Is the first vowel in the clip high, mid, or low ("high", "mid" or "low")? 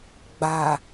low